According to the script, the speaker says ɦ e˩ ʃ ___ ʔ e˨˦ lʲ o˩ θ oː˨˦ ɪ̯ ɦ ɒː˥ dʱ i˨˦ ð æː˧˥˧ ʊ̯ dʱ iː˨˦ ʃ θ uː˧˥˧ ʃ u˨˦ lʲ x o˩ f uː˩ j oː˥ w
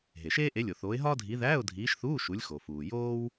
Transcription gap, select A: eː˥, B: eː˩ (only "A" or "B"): A